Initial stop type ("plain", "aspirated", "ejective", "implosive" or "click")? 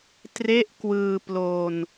plain